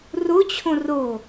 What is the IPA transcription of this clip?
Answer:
rot͡ɕʰõ ro

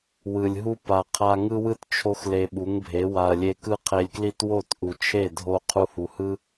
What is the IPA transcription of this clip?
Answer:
wɯ˨lʲɦu˦ pa˨qʰa˧ŋɯ˦wɯ˦t t͡ʃʰo˦xle˧ɓu˨˦ŋbʱe˨˦ wa˨ɐ̯ lʲe˧kɯ˦qʰe˧lʲkli˦t wo˦˨tʔu˨t͡ʃʰe˦˨ dʱo˧ qʰu˧hu˨hɯ˦

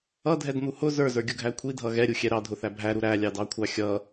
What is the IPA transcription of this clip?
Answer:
ʌdʱɛdn̪u hʊ zə˞zə˞ɡʲʊɡʱæ kʷʰidʱʌ ɣɛɾʲuxʲɛ ɾɑdʱʊθæ bʱæɾu ɾælʲɑdɑkʷʰɑ xʲʌ

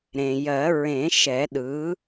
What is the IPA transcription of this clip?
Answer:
ɾẽ˩ jɜ˨˩˦ ɹẽ˨˩˦ʃɛ˨˩˦ ɗɯ˩˥

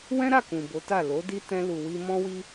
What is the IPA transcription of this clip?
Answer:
wɛ̃˦ɾa˦˨ kũ˨bo˨˦ta˦˨ lo˨˦di˦ tɛ̃˧lu˨wi˧ mɔ̃˦wi˦

